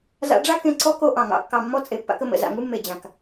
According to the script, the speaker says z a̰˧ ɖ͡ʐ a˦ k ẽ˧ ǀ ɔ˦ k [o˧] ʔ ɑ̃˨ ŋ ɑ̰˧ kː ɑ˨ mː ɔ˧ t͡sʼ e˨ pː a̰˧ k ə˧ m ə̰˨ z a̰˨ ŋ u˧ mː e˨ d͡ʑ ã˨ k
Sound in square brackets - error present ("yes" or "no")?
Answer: no